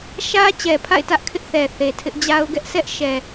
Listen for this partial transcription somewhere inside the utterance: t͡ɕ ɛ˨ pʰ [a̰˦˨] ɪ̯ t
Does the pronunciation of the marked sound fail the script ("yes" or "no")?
no